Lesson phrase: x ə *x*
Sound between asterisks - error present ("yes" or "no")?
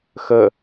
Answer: yes